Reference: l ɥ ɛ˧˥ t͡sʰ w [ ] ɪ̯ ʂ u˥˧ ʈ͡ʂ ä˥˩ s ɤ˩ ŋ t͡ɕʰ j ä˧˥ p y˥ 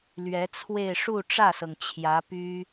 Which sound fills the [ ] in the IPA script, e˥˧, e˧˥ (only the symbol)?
e˥˧